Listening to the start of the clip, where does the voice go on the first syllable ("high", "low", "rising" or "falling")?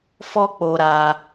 high